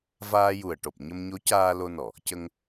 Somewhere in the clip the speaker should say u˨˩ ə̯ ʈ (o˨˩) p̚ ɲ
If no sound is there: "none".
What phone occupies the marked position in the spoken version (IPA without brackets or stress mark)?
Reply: o˨˩